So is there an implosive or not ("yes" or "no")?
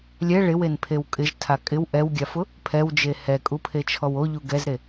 no